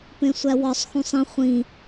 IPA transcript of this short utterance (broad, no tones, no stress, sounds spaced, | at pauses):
p ẽ sʷ æ w ɒ sˤ x ũ sˤ ĩ χʷ ĩ